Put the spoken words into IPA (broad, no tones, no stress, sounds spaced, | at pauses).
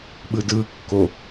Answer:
ɓ ɯ d ɯː kː o